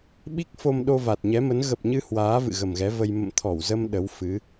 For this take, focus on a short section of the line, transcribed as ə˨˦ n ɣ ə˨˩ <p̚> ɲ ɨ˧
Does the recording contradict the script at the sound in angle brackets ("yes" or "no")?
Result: no